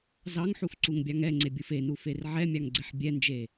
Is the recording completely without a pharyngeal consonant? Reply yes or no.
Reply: no